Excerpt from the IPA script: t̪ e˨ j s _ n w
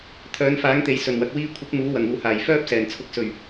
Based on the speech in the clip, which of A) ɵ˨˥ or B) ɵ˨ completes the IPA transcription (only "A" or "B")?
B